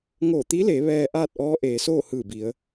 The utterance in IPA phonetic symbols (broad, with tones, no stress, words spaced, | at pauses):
ŋoː˧˩t̪i˧˥leː˩˧ ʋɛː˧ ʔaː˥˨t̚ʔɔː˧˥ ʔeː˩˧soː˥˨hɯː˧˩bi˩˧ə̯